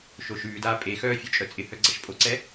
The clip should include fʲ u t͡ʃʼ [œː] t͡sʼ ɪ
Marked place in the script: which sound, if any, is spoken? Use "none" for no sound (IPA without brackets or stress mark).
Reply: œ